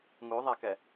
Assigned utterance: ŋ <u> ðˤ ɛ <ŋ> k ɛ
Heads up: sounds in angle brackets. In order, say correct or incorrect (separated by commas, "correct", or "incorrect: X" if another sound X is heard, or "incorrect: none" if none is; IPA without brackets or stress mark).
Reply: correct, incorrect: none